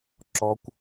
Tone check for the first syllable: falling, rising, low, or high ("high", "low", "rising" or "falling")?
high